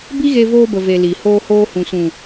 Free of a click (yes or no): yes